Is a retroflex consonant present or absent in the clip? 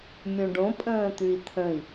present